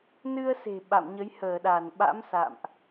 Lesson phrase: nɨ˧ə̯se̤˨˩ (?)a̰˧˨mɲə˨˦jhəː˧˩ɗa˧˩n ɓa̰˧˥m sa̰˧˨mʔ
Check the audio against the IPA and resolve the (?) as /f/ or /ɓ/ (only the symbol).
ɓ